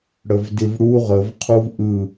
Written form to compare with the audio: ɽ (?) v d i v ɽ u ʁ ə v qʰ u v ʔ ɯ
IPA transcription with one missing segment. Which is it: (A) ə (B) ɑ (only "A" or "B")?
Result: A